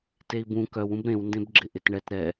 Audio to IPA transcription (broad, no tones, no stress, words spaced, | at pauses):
tei̯bũ kœw ũbɾẽw ndẽbɡ͡ǁɪʔɪtɳɛt ɾɛ